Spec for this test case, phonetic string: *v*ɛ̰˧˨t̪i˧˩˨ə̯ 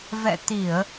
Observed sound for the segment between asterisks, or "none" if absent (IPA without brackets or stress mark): v